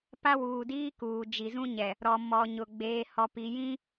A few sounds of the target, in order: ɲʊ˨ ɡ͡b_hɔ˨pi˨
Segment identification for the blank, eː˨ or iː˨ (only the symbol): eː˨